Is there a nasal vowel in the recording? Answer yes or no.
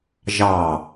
no